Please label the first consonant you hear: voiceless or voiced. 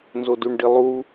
voiced